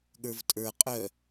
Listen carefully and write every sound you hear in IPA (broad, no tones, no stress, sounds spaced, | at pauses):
ɠ ə˞ v tʼ ə˞ qʼ œ